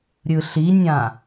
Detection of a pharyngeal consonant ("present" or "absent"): absent